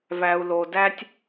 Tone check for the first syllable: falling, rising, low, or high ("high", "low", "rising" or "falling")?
low